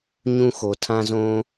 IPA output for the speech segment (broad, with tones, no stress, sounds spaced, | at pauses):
ɲ ũ˦ x o˨ tʰ ã˦ z õ˦